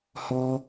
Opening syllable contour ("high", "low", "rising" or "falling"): high